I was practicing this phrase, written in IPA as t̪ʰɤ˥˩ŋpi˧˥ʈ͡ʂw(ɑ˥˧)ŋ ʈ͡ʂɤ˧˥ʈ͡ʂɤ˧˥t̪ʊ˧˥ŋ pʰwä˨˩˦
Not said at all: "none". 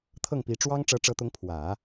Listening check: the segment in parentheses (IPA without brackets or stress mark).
ɑ˥